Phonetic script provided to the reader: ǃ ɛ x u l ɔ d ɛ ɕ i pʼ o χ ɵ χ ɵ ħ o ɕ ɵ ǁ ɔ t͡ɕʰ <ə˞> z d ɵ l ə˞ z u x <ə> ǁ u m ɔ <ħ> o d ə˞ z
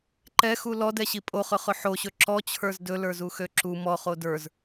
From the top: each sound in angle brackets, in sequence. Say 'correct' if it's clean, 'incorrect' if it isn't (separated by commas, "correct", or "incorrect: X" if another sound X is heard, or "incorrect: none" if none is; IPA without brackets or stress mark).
correct, incorrect: ø, incorrect: χ